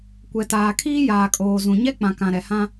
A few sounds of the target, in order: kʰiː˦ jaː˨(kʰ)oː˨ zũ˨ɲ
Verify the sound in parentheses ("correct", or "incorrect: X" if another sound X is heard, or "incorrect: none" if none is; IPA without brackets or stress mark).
incorrect: kʼ